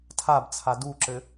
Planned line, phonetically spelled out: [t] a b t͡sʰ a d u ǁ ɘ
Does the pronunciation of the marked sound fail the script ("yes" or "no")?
yes